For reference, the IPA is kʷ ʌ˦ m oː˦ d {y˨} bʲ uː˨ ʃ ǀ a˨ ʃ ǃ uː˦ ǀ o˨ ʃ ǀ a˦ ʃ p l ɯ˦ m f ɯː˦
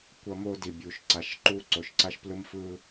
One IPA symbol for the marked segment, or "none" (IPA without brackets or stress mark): i˨